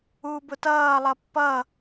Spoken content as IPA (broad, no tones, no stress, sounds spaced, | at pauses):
uː b ʊ t ʌː lˠ ʌ pː ʌ